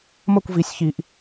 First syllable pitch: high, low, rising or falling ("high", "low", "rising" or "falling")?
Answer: falling